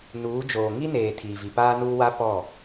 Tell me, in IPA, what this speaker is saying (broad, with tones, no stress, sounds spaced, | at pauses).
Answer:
n uː˨˦ d͡ʒ oː˨ ŋ i˦ n eː˨ tʰ iː˨ v i˨ p aː˦ n uː˦ w a˦ p ɔ˦˨